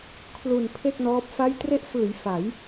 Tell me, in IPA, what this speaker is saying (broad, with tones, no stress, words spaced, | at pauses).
kʰlu˨˩n pʰe˥˩k̚nɔː˦˥p̚fa˥˩j tre˦˥ʔfɯː˩˦j fa˩˦j